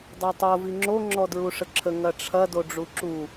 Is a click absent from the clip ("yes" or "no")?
no